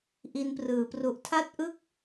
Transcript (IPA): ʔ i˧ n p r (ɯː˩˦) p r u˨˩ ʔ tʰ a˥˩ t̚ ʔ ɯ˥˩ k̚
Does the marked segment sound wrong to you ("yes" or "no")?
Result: no